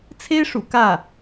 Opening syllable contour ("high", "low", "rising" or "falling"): high